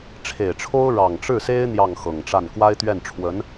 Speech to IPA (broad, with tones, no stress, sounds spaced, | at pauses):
ʈ͡ʂʰ e˨˩ ɪ̯ ʈ͡ʂʰ o˥ ʊ̯ ɻ ɑ˨˩ ŋ ʈ͡ʂ ɻ̩˥˩ s e˥ ɪ̯ n̪ j ɑ˥˩ ŋ x ɤ˨˩ ŋ ʈ͡ʂ a˥˩ n k w a˥ ɪ̯ t̪ ɥ ɛ˥˩ n ʈ͡ʂʰ w ə˧˥ n